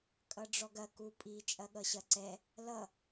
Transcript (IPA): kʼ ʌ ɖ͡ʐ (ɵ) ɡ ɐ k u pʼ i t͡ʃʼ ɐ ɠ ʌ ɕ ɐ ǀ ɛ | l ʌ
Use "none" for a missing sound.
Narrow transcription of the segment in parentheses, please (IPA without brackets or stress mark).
ɔ